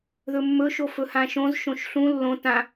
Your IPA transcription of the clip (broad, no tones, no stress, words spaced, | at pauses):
ðɵmːɵʃo fɵhãʃõz ʃõʃɬũ lːõ tã